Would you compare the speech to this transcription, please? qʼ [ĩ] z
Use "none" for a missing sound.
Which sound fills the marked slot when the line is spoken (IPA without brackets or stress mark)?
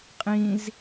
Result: ĩ